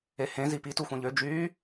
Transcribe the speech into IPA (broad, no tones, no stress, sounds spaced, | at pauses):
e h ẽ z i p i t u xʷ ẽ ʎ ø d͡ʒ yː